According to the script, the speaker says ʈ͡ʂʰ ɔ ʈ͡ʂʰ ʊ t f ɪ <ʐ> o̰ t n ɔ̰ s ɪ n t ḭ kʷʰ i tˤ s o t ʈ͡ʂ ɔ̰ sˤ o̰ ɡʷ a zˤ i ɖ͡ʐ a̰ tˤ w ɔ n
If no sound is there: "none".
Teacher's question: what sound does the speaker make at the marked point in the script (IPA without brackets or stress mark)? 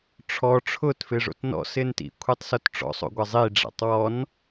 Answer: ʐ